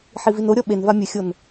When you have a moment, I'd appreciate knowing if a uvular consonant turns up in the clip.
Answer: no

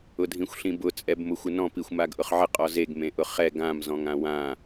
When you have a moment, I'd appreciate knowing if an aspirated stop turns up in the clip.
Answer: no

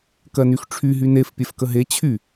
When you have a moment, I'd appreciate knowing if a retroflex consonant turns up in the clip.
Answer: yes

